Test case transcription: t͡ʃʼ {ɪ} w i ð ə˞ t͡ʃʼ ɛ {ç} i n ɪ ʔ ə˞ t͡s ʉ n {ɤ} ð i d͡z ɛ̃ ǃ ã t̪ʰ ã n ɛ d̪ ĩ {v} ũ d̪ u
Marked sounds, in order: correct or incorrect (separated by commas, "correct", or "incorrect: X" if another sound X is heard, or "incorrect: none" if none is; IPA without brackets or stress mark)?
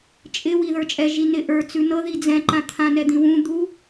correct, incorrect: ʒ, correct, incorrect: w